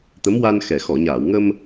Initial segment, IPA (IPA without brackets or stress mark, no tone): t̪